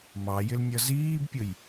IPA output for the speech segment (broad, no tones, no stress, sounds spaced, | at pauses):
m ɑ j ɪ l nʲ ʌ z iː b pʲ ʊ j